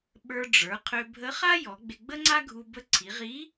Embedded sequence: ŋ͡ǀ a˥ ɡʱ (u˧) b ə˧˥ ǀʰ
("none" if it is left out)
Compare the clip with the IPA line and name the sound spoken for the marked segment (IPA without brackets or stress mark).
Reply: u˧